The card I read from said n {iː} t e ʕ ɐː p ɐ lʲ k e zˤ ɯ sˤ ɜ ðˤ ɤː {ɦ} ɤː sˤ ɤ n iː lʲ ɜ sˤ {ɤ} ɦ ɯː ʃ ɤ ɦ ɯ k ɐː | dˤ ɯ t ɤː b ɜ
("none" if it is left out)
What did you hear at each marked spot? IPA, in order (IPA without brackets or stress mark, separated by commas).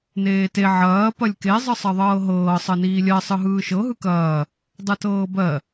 eː, ɦ, ɯ